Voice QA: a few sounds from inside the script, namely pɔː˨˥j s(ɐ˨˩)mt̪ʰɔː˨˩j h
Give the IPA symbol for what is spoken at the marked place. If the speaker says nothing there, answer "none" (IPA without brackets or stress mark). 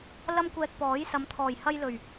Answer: ɐ˨˧